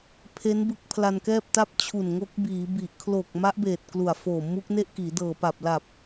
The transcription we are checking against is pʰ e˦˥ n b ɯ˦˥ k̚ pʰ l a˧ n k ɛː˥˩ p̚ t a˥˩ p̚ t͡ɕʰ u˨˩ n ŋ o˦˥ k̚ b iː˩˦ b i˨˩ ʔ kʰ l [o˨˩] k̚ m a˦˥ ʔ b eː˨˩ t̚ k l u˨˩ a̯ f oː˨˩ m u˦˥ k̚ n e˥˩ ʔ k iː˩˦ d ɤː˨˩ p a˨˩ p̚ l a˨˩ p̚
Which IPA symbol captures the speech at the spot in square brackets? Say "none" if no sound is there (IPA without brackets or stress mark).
o˨˩